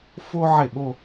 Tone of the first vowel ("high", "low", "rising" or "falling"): high